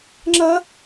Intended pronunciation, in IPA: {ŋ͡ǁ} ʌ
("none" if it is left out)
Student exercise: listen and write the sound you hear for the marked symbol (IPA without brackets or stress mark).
ŋ͡ǁ